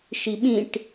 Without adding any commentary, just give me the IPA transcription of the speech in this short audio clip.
ʃ i ɓ ĩ ʈ

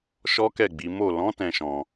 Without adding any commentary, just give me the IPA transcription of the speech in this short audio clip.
ʃ ɔ˦ k ɛ˦˨ ɡ͡b i˨˦ m o˦˨ l ɔ̃˨˦ t ɛ̃˧ ʃ ɔ̃˧

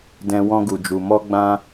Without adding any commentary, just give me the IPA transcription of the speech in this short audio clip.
d ɛ̃˨ w ɔ̃˧ ɡ u˨ d͡ʒ u˨ m ɔ˧ ɡ͡b ã˧

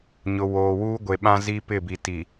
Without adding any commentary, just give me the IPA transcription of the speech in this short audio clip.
ɲ ʊ˨ w oː˨ w uː˦ ɡʷ e˨ ɓ ã˦ z i˦ p ɪ˦˨ b i˨ t i˨

